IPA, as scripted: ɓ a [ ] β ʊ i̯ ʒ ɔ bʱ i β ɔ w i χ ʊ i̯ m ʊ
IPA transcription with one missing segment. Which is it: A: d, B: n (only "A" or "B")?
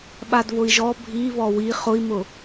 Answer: A